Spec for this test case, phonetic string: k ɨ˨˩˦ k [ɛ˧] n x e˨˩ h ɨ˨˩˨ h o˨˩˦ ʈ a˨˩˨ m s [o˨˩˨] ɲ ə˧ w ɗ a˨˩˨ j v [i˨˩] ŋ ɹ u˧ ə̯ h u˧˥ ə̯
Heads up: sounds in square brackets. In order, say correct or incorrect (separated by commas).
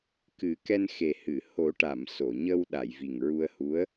correct, correct, correct